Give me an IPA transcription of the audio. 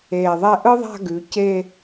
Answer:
eː˧˩ ðˤ ɛ˥˧ ʔ ɯ˥ ðˤ a̤˥˧ ɡ ʉ˩˧ c e˥˧

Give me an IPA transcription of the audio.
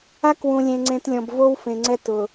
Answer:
a˦ k w ũ˨ lʲ ẽ˨ ŋ͡ǀ ẽ˨ t lʲ ɔ̃˨ b v o˦ w f ẽ˨ ŋ͡ǀ ɛ˦ t ʊ˨

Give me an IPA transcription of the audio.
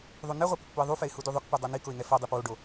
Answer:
ðˤ u n ɛ ʁʷ ɛ p ʊ k p u ɪ̯ ðˤ u f ɛ ɪ̯ h u d u ðˤ ʊ k p u dˤ o n i k ʊ ɪ̯ ŋ ɛ f o dˤ i p w o ɖ o

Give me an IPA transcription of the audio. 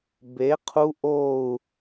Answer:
b e˨˥ qʰ u˦˥ ʔ o˥˧ u̯

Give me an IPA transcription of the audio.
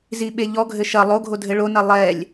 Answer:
z i ɓ e ʎ ɔ ɡʱ ɘ ʃ ɐ lˠ o ɡʱ o dʱ ɘ ɭ o n ɐ lˠ ɛ lʲ

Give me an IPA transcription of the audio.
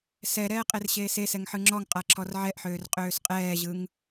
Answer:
s ɛ ɾ ɛː qʼ e r ɕ eː s e s ɛ ŋ ħ ɯ ŋ͡ǁ ɔ ŋ qʼ a ǁʰ ɔ r ʕ ɛ ʔ ħ øː r qʼ øː s qʼ ɛː ʑ ɯ ŋ

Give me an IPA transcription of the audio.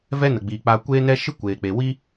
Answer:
v ɛ˦ n ə˨ ɡ͡b iː˨ k͡p a˧ kʷ eː˦ n ɛ˦ ʃ ɨ˦ kʷ eː˨ k͡p e˨ w iː˦

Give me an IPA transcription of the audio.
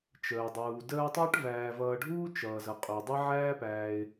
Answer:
t͡ʃ əː˩ dˤ uː˩ d əː˦ tˤ əː˥ ʈ v æː˨ v ʌː˨ ɖʱ uː˥ t͡ʃ ʌː˩ z ʌ˩ qʼ u˩ dˤ ʌ˦ ʕ æː˦ p æː˨ ɪ̯

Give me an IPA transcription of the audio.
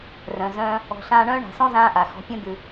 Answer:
r œ̃˨ z œ̃ː˦ | ɔ̤˨ ɬ ãː˧ ɳ œ̃ː˦ ɳ a̤˨ s ɔ̃˦ z ãː˦ ʔ a˨ x ɔ̤˨˦ pʲ œ̃˦ d̪ ʉ˧

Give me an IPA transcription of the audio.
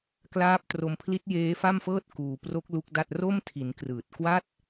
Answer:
k l aː˦˥ p̚ t r o˧ m pʰ l i˦˥ t̚ j eː˦˥ f a˥˩ m f ɤː˥˩ t̚ k uː˧ p r o˦˥ k̚ l u˦˥ k̚ d a˥˩ t̚ r o˥˩ m tʰ i˩˦ n k r ɯː˨˩ t̚ k w a˥˩ t̚

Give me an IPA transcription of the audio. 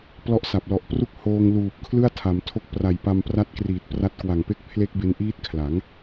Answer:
p l ɔ˦˥ ʔ s a˨˩ p̚ l ɔ˨˩ ʔ p r u˥˩ k̚ h oː˧ ŋ l uː˨˩ p̚ kʰ l ɯ˥˩ a̯ tʰ a˩˦ m tʰ o˦˥ k̚ p r a˨˩ j p a˧ m p r a˦˥ t̚ k r iː˨˩ t̚ p r a˦˥ t̚ k w a˨˩ ŋ p e˥˩ k̚ pʰ l e˦˥ k̚ b e˧ n ʔ iː˦˥ t̚ kʰ l a˩˦ ŋ

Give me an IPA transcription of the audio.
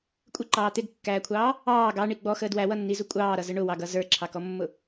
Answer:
kʷʼ ɪ ǃ ɑː t̪ ɪ ɡ kː æː kʷʰ ɑː | ɑː ɡ ɑ ɳ i ɡ͡b ɔ x əː d w æ w ʌ nː i z u kʷʼ ɑː ɾ ʌ z ə ɳ ʊ w ɑ ɡ ʌ z ə˞ ǁʰ ɑ k ɔ mː ʊ

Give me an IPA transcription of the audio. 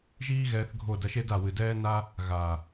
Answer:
ʒ iː˦ ɣ ɛː˧ θ ɡʱ o˦˨ d ɐ˧ ʃ e˦ d a˨ w ɨ˨ d ɛː˦ n a˦ | ɣ a˨

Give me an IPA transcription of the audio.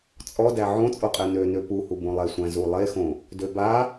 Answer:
t͡sʼ ɔ d æ ʕ õ t͡sʼ o qʼ ɛ n ø n ø p u h u b õ lˠ e sʷ æ̃ z u lˠ e x õ | d ø b a

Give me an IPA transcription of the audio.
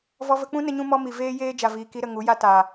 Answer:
v ɔ˧ v ə˧ k͡p ũ˦ n ə˧ ɲ ũ˧ m ɔ˧ m i˨ v eː˦ j eː˦ d͡ʒ a˨ v iː˨ k i˧ ɾ ə˦˨ ŋ u˨˦ j a˦ t aː˨

